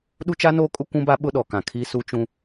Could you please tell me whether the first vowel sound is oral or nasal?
oral